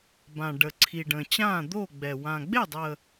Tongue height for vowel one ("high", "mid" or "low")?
low